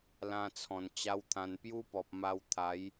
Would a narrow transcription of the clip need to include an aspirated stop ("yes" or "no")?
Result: yes